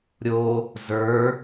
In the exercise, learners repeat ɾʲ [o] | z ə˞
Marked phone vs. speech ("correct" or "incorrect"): correct